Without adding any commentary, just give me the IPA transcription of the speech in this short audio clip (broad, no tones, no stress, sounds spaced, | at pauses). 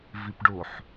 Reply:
v i p ɖ o ħ